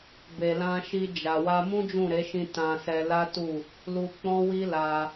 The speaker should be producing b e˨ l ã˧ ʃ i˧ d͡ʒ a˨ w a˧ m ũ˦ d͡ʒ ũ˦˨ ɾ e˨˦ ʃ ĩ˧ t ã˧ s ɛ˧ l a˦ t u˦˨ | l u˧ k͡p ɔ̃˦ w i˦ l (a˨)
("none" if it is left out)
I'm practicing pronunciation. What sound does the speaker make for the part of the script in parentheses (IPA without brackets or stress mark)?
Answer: a˧